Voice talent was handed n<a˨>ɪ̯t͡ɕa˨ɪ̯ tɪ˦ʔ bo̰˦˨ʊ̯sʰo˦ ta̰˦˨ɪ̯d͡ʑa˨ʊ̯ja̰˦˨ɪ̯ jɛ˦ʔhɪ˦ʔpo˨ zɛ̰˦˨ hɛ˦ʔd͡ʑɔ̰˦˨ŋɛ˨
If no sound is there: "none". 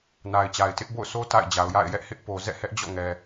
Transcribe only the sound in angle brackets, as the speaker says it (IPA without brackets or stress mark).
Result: a˨